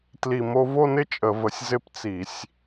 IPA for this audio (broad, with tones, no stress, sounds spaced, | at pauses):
t l i˧˩˧ m o˧ v o˥˧ n ɪ˥˧ t͡ʃʼ ə˧˩˧ v ə˧˩˧ sʲ z ɪ˥˧ p t͡s i˧˩˧ sʲ